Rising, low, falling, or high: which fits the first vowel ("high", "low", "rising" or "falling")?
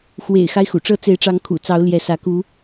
low